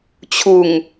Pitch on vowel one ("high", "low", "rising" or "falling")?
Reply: low